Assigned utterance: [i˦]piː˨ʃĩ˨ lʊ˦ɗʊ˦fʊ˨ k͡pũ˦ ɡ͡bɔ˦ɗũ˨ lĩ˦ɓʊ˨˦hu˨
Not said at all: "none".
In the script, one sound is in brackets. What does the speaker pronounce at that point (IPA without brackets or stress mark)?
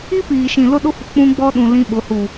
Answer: i˦